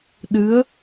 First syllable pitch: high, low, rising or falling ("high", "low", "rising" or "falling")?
rising